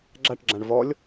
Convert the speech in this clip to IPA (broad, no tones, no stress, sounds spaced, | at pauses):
ɡ͡ǁ a ʈ ɡ͡ǁ ã ɳ v ɔ lʲ